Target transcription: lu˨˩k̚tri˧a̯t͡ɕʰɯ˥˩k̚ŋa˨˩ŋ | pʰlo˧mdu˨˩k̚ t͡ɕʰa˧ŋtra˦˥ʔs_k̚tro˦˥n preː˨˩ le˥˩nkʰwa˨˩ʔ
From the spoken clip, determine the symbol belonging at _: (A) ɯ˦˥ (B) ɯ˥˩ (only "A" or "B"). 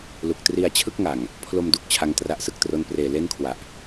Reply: A